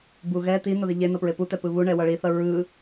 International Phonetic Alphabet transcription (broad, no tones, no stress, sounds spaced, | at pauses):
b u ɣ ɛ t̪ i n o ð i ʎ e n ʌ p ɹ e p u t̪ ɛ p ɯ β u ɳ ɛ w ʌ ɭ i θ ʌ ɹ ɯ